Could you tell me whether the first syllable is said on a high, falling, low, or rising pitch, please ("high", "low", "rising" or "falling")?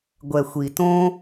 low